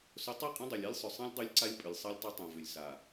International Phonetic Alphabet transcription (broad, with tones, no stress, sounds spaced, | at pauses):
s ʊ˨˦ tˤ i˦˨ qʼ ĩ˦ dˤ ɛ˨ lʲ a˦ lʲ sˤ ʏ˨ sˤ ɛ̃˦ lʲ dˤ y˦ lʲ ǀ a˦ lʲ pʼ ʏ˨ lʲ sˤ ɛ˦ lʲ tˤ ʊ˦ tˤ ɛ̃˨ v ʏ˨ lʲ s a˨